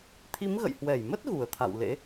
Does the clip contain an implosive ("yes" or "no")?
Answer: no